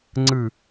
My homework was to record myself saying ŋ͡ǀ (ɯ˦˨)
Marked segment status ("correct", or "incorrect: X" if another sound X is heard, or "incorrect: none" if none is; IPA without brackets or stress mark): correct